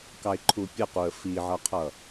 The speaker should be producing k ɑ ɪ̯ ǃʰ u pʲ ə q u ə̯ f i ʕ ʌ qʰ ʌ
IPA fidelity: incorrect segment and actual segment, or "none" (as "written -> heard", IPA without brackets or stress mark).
none